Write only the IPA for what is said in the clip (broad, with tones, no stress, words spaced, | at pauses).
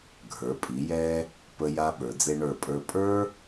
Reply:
ɡʱə˞˩˧pʼi˩˧jɛ˧ | pə˧ja˧ ɓə˞˩˧d͡ze˧ɳə˞˧˩pʼə˞˧ pʼə˞˥